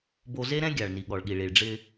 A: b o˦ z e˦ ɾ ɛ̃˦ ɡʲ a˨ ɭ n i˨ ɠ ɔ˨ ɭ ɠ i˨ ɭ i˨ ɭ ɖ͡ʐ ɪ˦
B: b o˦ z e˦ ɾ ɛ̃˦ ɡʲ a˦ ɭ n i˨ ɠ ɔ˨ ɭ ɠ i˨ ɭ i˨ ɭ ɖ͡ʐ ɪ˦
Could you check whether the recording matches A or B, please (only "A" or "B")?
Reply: A